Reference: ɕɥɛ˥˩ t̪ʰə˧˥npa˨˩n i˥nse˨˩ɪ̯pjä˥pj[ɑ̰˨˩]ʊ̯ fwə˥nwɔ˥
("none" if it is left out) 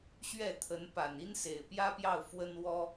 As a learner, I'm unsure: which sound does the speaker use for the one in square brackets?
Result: ɑ˥˩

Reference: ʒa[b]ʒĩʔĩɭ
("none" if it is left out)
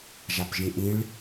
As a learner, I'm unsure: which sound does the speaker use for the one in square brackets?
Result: p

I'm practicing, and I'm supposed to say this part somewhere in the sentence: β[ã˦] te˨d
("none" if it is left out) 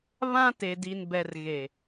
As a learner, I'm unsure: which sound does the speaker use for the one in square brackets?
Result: ã˦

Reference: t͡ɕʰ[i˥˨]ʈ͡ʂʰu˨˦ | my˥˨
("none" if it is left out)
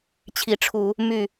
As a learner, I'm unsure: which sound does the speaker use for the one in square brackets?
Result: i˨˦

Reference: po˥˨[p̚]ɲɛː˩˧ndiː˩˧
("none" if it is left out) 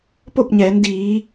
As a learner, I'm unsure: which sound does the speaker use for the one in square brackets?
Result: p̚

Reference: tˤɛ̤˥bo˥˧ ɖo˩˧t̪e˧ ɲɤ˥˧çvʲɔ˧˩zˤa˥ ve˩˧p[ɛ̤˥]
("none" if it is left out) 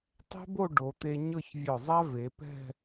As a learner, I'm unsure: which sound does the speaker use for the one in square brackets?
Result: ɛ̤˥˧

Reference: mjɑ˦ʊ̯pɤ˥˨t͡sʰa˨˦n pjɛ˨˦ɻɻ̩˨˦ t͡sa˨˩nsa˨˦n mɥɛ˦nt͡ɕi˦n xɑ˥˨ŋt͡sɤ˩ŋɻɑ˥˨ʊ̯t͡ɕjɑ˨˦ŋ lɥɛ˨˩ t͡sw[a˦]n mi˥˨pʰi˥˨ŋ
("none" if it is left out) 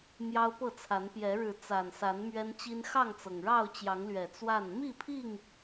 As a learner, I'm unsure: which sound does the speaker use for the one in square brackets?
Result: a˥˨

